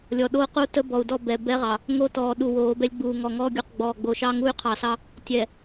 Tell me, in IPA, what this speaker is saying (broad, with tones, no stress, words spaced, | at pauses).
lʲɔ˨ ɗoː˦qu˦ tə˦bɔ˨u̯dɔ˦˨ bɛ˨ bɛ˦ʁɑ˨ | ŋo˦tɔː˨ ɗu˨woː˨˦bɛ˦lʲɡ͡buː˨ ŋɔ˨ŋɔː˦ɡʲu˨q ɡ͡bɔː˨ɡ͡bo˨ʃɑ˦ŋu˦y̯ qʰɑ˨sɑ˦ | tʲɛ˨